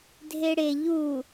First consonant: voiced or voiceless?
voiced